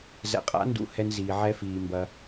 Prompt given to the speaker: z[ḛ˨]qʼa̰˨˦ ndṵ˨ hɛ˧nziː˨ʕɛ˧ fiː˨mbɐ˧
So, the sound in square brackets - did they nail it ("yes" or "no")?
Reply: no